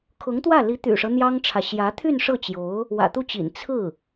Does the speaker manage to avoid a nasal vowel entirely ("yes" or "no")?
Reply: yes